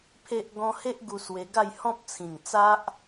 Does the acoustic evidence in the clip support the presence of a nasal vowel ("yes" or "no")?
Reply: yes